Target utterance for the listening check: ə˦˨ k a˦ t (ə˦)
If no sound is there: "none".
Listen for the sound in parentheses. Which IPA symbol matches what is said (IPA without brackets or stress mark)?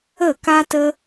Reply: ə˦